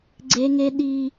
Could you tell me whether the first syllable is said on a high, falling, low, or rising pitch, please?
high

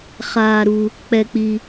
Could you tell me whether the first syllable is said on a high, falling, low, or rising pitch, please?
low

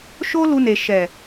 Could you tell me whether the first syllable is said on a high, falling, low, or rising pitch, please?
high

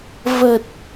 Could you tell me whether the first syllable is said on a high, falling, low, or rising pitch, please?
low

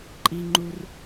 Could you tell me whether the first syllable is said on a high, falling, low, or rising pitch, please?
high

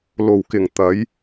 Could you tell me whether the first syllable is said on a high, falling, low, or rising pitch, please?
low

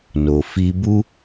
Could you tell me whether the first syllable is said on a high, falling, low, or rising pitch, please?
low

